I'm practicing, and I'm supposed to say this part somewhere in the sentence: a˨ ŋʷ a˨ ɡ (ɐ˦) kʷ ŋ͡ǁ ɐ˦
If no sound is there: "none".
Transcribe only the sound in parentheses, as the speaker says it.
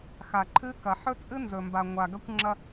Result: ɐ˦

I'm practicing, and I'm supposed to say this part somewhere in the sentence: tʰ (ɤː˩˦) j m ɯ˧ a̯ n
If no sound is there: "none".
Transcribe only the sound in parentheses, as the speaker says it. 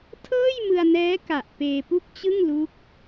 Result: ɤː˥˩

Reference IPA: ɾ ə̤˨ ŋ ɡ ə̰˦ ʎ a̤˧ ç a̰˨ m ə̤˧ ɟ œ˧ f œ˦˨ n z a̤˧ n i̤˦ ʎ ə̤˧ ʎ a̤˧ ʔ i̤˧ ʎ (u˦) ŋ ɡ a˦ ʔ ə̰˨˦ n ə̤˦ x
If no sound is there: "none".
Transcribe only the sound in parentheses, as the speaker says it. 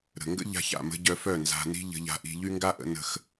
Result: y˦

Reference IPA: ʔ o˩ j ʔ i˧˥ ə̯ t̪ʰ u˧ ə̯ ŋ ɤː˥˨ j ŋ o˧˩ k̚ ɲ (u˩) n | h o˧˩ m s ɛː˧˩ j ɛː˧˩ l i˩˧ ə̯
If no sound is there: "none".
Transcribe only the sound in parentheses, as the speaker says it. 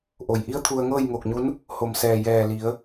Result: u˧˥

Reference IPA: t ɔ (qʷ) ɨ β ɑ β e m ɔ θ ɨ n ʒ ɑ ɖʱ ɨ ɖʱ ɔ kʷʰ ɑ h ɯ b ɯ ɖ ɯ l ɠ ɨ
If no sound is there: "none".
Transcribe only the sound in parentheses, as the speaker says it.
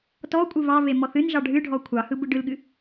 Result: kʷʼ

